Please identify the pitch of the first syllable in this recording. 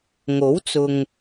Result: rising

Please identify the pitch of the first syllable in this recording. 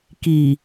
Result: low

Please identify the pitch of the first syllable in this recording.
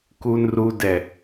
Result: low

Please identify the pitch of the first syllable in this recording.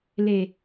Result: low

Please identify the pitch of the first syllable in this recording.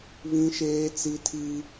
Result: high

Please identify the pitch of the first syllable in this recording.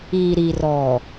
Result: low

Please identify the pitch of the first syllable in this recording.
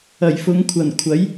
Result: low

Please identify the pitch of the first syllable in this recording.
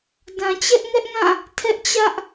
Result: low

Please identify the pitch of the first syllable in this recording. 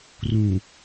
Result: low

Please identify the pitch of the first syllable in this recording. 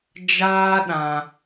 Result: high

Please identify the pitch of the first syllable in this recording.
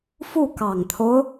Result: falling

